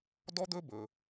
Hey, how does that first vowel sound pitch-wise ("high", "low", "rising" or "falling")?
high